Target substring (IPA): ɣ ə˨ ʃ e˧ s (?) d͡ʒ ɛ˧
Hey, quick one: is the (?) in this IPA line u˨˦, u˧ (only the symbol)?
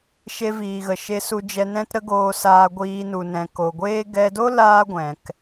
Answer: u˧